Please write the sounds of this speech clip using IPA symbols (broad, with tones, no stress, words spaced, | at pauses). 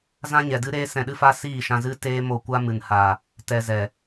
zã˦ɲɛ˨dɨ˦ ɾeː˦sɛ̃˧ɗɨ˦fa˦ siː˦˨ʃã˧zɨ˦ teː˦mo˧kʷa˦ mɨ˨nha˨ | tɛ˨ zɛ˨